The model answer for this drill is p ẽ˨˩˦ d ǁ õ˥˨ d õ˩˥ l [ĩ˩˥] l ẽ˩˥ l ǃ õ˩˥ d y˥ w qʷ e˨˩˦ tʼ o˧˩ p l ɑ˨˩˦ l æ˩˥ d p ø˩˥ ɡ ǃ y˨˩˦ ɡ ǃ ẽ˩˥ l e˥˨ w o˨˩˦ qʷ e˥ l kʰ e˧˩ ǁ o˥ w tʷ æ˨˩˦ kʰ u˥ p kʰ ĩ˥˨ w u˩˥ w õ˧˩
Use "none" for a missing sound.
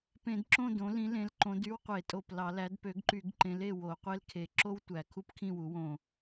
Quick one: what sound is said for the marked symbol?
ĩ˩˥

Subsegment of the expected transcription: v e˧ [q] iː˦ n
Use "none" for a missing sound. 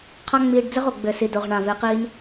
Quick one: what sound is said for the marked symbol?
q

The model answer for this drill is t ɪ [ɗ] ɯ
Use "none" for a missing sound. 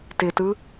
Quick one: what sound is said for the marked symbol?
t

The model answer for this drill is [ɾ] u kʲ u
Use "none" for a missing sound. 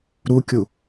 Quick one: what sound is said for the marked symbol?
ɾ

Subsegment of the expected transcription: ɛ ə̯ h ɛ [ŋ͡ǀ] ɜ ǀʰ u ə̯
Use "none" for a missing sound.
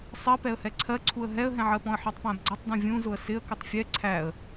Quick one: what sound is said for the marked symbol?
ǀʰ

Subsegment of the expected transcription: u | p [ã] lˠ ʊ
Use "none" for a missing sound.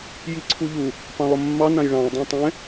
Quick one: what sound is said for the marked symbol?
ɑ̃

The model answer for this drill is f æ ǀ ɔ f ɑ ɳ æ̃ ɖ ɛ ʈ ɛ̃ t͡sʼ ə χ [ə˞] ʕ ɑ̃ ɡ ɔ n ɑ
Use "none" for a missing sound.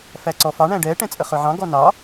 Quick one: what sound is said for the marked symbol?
ə˞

